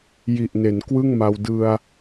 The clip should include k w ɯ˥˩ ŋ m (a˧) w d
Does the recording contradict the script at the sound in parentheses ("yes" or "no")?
no